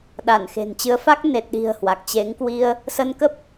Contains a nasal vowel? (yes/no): no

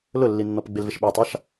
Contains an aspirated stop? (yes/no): no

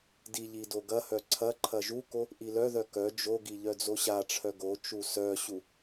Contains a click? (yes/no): yes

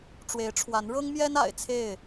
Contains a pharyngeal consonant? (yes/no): no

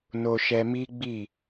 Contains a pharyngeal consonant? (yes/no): no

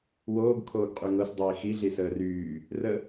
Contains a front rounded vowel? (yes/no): yes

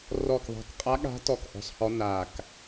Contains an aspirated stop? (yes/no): no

